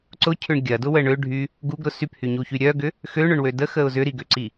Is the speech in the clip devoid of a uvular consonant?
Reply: yes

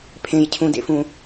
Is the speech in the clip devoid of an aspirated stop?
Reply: no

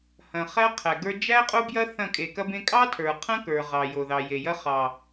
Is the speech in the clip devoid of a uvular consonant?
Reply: no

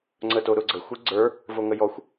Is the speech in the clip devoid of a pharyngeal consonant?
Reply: yes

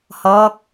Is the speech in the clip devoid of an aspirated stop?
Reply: yes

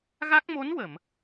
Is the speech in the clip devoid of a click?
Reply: yes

